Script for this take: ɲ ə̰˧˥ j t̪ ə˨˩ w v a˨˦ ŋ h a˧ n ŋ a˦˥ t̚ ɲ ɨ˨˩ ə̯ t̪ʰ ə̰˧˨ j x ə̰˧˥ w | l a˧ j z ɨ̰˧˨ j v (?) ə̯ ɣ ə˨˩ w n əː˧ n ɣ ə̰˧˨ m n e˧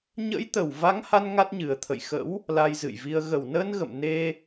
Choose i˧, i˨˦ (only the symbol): i˧